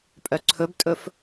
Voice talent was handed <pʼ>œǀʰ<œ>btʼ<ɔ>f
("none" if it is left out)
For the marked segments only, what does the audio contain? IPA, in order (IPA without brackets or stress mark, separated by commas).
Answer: pʼ, ɵ, ɵ